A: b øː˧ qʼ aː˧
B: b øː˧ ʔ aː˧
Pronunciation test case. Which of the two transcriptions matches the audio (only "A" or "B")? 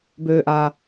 B